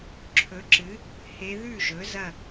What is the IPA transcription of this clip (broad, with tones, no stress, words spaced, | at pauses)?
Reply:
ǁʰɵ˩˥ǁɨ˩˥ | he˧˥ ðʉ˥˩ʒɵ˩˥ zɐ˥˩